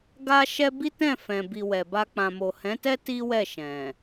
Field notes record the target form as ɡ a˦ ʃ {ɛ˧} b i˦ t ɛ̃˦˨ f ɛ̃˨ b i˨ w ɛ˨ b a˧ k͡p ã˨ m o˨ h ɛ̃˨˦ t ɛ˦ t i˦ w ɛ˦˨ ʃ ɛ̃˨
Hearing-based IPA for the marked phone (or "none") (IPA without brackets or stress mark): ɛ˦